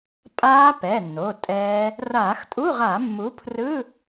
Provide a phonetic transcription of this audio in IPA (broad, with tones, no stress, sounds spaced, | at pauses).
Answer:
pʼ aː˦˥ p ɛ˩˧˩ nː o˩˧˩ tʼ ɛː˦˥ | r aː˧˩˧ x tʼ u˧˥˧ ʁ a˧˩˧ mː u˨˥ pʰ r ɯ˧˥˧